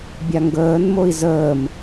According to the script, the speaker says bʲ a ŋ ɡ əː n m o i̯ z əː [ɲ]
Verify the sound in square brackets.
incorrect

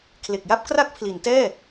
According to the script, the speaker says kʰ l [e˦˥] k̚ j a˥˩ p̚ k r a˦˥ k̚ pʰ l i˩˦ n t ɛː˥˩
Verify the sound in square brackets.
incorrect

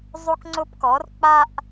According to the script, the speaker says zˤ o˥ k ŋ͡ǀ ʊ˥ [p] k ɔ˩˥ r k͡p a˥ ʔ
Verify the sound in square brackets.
correct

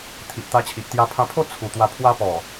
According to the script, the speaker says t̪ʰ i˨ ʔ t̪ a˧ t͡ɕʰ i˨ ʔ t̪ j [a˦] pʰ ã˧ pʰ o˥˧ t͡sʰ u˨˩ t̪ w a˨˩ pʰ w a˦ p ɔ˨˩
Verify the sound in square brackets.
incorrect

